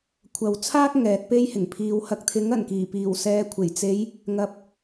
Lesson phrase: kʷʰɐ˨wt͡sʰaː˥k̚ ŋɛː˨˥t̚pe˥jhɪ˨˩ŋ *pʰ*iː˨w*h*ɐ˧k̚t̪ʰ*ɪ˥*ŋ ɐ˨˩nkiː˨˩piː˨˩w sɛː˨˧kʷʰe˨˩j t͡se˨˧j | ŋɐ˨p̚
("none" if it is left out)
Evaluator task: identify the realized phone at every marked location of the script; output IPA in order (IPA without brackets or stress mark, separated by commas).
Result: pʰ, h, ɪ˨˥